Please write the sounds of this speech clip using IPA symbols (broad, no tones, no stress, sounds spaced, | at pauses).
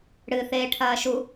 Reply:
ɽ ɨ θ eː ʈʰ ɐː ʃ u